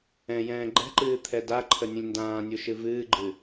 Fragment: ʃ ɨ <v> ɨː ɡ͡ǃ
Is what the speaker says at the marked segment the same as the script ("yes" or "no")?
yes